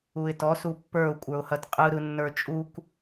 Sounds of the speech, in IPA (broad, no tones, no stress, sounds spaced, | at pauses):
u ɪ̯ t ɔ s u pː ə˞ ʊ̯ kʷʼ ə˞ ʊ̯ h ɐ t qʼ ɯ ɾ ɯ nː ə˞ t͡ʃʼ u k